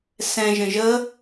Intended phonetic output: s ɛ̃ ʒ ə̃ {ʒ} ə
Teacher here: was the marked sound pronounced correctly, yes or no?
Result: yes